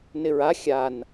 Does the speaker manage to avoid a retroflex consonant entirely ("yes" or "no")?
yes